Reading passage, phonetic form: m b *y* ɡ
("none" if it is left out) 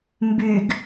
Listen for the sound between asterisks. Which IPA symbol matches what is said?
y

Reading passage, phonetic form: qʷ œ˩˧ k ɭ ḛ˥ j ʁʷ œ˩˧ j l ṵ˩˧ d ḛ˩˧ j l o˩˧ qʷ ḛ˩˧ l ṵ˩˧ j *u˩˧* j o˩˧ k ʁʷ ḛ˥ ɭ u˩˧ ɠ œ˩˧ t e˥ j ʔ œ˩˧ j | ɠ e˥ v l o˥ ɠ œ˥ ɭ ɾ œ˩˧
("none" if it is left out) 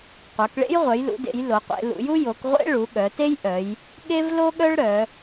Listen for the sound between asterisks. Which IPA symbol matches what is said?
u˥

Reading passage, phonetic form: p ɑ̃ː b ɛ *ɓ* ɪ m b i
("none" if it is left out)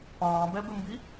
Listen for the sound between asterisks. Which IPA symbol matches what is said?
b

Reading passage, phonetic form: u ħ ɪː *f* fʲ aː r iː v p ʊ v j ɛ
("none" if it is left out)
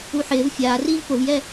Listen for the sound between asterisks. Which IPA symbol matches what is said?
v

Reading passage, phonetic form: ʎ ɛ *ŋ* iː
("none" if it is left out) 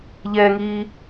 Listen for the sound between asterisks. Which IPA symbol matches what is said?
ŋ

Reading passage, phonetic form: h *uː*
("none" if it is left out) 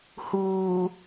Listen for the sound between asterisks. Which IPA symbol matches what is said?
uː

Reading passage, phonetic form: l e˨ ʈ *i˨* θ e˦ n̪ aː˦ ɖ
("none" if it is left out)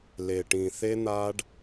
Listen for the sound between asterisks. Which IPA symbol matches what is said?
ĩ˨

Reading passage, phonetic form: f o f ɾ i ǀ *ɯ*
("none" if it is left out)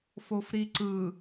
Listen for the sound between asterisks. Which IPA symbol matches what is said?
ɯ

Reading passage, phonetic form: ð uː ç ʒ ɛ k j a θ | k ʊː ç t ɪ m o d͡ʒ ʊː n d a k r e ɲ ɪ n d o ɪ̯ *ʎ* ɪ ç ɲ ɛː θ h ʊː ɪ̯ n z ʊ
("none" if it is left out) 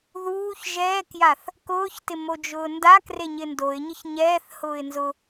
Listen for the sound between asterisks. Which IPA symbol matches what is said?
ɲ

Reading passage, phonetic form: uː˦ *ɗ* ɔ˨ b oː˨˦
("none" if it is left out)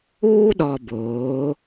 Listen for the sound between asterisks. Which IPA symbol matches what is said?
ɗ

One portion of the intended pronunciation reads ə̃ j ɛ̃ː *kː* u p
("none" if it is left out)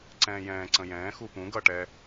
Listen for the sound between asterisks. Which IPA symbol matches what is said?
x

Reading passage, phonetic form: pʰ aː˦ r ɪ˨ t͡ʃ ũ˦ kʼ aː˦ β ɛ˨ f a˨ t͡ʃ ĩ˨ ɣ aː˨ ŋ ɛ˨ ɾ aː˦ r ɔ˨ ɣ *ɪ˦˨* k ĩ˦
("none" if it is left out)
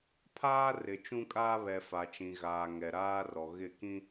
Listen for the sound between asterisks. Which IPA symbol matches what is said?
ɪ˦˨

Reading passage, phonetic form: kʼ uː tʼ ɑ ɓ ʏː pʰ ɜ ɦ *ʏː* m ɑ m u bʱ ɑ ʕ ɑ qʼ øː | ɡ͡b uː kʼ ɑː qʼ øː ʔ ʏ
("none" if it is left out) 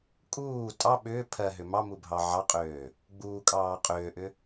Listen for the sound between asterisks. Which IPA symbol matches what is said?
ʏ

